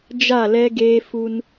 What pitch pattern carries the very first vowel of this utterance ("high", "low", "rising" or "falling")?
falling